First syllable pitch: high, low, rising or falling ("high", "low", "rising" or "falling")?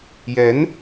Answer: rising